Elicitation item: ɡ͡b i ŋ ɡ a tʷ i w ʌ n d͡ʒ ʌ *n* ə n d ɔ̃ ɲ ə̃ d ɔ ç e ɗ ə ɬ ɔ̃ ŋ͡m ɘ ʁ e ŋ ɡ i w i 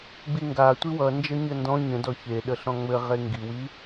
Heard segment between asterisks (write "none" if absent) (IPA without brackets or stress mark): ɲ